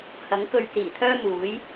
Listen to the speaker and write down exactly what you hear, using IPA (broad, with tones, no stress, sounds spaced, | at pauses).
h ɐ˨˥ ŋ k ɵ˧ ɥ t͡s iː˨˩ t̪ʰ œː˥ m uː˨˥ j